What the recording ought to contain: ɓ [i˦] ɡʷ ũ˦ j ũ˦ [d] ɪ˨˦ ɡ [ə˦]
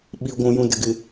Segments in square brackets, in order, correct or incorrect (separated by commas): correct, correct, incorrect